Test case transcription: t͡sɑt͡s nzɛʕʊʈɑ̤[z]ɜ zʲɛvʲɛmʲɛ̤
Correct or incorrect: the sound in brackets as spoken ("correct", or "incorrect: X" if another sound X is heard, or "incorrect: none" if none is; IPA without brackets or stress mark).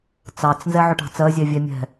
incorrect: t͡s